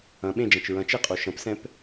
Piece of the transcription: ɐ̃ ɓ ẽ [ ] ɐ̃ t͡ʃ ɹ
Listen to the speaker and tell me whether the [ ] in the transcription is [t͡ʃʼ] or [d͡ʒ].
d͡ʒ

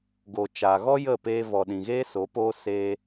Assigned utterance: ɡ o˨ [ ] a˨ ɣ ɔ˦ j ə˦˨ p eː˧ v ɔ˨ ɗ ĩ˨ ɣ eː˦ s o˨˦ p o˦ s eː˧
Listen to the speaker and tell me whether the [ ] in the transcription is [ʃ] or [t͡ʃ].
t͡ʃ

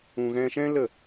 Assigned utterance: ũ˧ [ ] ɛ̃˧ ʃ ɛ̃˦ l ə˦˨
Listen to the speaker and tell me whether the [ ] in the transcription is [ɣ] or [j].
ɣ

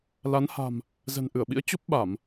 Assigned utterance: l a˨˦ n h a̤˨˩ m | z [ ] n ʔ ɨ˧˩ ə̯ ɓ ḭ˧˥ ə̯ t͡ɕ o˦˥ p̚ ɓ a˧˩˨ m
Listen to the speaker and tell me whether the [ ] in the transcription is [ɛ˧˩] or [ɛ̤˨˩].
ɛ̤˨˩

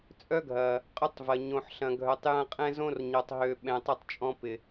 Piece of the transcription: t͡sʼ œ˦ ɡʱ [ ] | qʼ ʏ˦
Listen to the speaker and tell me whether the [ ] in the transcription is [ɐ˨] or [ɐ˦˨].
ɐ˨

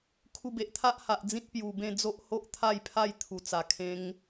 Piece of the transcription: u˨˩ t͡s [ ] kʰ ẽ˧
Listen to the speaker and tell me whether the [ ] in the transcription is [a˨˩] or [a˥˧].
a˨˩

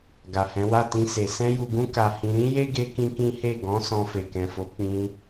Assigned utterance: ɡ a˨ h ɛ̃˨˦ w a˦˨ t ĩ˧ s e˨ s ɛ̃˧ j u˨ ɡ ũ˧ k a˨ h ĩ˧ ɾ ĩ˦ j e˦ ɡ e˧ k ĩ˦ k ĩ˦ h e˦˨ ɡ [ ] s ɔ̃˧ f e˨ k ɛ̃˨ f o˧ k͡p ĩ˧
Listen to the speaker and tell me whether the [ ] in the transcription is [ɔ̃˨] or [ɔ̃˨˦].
ɔ̃˨˦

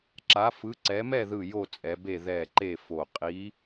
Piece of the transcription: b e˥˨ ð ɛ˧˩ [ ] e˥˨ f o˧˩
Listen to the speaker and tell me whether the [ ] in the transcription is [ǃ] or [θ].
ǃ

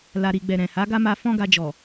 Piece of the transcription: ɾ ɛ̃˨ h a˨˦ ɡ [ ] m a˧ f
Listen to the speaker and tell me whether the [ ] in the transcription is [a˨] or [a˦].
a˦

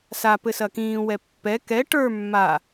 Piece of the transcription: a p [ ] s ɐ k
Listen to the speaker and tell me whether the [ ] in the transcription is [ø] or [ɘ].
ɘ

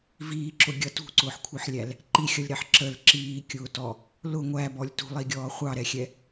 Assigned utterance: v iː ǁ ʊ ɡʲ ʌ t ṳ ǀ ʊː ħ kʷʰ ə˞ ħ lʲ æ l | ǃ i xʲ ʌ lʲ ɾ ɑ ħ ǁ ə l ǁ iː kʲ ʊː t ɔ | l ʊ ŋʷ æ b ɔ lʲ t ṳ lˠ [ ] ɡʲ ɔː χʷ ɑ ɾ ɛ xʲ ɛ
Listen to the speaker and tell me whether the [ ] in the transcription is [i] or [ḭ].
i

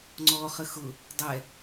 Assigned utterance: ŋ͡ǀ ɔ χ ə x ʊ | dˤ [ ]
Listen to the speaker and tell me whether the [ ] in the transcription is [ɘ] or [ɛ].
ɛ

